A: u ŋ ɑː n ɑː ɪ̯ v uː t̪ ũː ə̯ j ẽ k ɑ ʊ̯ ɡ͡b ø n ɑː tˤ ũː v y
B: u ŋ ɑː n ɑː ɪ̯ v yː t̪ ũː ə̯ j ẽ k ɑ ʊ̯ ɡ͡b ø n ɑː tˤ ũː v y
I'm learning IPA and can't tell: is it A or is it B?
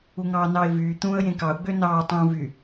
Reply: B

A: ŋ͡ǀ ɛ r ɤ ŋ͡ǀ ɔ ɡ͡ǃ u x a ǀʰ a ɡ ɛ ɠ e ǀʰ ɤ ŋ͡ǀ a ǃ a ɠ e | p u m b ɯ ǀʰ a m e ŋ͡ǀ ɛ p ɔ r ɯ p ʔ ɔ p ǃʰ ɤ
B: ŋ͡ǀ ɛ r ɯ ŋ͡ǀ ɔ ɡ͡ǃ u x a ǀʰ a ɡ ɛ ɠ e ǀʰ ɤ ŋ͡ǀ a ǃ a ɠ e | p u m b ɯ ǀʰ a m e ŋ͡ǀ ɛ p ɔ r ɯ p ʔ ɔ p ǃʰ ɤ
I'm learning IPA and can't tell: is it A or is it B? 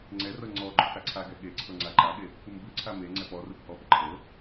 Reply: A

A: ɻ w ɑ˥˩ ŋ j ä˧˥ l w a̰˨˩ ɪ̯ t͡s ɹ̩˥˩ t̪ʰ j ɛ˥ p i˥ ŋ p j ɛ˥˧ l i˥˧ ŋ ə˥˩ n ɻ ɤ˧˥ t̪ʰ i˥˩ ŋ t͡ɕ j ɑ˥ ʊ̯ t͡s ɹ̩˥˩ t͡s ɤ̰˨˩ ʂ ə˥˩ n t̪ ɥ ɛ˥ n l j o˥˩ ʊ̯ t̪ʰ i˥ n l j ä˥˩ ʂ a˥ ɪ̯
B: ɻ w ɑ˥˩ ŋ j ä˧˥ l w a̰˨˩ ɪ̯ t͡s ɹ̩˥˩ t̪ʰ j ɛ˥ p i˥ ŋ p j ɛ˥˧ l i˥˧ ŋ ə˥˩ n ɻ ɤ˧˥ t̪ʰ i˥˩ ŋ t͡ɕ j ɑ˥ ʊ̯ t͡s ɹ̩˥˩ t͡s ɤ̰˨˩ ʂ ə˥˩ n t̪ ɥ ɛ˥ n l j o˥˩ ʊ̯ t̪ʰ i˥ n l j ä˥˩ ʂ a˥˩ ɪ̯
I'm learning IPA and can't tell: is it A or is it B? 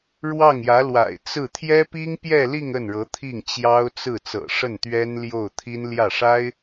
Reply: A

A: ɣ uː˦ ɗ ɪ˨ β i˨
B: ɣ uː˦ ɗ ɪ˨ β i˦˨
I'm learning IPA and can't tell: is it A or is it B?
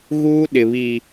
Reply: A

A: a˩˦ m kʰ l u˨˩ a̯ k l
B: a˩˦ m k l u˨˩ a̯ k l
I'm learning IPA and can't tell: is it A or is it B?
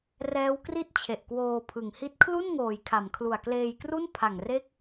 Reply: A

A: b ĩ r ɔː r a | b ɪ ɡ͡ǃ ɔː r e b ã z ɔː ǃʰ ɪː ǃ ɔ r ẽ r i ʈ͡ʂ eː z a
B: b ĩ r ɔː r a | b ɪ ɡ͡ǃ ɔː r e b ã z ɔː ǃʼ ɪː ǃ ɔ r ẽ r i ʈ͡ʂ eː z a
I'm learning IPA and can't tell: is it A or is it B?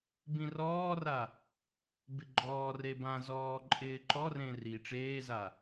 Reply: B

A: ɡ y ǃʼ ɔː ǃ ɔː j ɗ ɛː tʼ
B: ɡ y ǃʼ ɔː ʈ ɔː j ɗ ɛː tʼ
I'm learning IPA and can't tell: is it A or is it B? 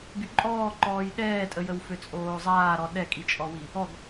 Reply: A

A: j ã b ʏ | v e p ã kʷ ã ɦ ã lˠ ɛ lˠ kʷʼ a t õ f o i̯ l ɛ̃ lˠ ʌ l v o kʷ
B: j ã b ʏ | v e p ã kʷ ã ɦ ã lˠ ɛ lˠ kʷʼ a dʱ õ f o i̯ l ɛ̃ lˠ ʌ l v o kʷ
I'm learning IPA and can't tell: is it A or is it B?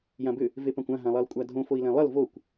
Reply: B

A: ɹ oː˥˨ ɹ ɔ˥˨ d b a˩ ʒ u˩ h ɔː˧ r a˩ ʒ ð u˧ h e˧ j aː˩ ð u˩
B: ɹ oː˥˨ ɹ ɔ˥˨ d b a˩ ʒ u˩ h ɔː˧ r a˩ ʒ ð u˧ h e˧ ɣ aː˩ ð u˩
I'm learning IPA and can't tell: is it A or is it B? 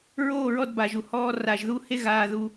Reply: B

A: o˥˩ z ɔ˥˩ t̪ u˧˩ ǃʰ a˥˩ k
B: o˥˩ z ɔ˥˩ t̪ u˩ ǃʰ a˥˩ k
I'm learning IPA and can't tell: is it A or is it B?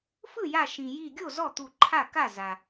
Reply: A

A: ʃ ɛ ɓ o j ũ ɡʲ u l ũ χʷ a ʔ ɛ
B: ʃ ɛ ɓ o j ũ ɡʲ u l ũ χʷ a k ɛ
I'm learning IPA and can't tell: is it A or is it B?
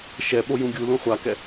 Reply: B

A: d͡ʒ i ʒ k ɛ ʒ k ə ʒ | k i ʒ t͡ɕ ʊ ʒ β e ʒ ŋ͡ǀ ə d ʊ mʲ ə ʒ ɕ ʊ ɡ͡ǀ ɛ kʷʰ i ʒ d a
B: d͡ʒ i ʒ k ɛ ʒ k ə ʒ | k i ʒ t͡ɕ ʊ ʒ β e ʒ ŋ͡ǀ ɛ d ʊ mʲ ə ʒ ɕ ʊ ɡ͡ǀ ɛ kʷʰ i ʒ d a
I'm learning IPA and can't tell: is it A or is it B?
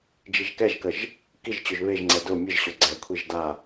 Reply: B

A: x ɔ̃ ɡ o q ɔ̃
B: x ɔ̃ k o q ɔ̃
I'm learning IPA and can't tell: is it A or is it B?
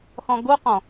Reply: A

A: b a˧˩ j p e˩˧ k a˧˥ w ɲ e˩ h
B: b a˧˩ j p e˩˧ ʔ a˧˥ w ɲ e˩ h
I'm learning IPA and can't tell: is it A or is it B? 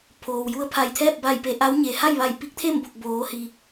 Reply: B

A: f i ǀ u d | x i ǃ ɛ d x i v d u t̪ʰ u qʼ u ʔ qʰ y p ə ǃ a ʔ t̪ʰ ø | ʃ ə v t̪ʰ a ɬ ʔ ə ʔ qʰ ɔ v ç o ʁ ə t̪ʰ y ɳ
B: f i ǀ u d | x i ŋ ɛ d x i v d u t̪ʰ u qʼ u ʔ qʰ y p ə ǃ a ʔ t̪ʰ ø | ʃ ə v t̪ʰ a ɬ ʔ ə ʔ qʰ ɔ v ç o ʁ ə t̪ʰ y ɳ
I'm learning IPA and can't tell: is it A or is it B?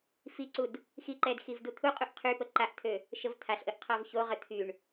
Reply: A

